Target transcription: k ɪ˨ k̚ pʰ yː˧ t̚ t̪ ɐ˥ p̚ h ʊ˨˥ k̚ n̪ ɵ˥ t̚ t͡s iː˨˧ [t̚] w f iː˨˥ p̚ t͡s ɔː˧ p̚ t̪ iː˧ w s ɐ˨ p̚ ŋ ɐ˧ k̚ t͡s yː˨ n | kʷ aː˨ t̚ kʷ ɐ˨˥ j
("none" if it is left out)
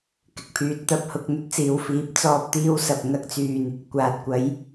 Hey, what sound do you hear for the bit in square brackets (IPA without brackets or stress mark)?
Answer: none